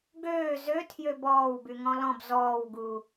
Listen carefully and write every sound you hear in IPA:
ɡ øː z ø tʰ j ø b ɔː w b y ŋ ɔ̃ l ɔ̃ b z ɔː w ɡ u

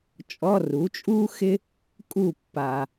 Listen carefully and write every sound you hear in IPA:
t͡ʃʼ ɔ˧˥˧ r u˩˥ t͡ʃʼ uː˥ x ɪ˥ | kʼ u˥˨ pː a˨

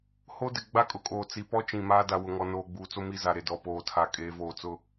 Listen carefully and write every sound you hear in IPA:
h o˦ d ɪ˨ ɡ͡b a˦ kʼ ʊ˨ kʼ oː˨ t͡s i˨ p ɔ˦ t͡ʃ ĩ˨ m aː˦ d a˨ w ʊ˨ ŋ ɔ˨ n oː˨ ɡ͡b uː˨ t͡s o˦ m i˦ z a˨ ɾ e˨ d ɔ˨ p oː˨ tʰ a˨ kʼ eː˨ v oː˨ t͡s ʊ˦

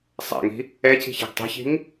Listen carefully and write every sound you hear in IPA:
sˤ a̰ ŋ i̤ | ɛ c i̤ ç a̤ ɡ tˤ ɛ̤ ç i̤ ŋ

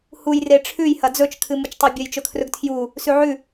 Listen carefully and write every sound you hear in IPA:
h u j r e ʈ͡ʂʰ ʉ j h ɐ d͡z ɵ t͡ʃ kʰ ɨ m u t͡ʃ tˤ o bʲ ɐ j t͡ʃ ɵ kʰ r ɵ ɡ tʰ j u | s ʉ ʕ ʉ

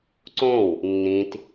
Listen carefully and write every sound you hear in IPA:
ǀ õ w | nː ĩ t

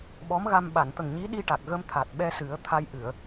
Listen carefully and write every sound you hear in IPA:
ɓ ɔ˧˥ m ɣ a˧ m ɓ a˨˩˨ n t̪ ə˨˩ ŋ ɲ i˧˥ ɗ i˧ ʈ a˨˩ k̚ ɣ ə˧ m t̪ʰ a˨˩ t̚ ɓ ɛ˧ s ɨ˨˩˦ ə̯ t̪ʰ a˧ j ʔ ɨ˨˩˨ ə̯

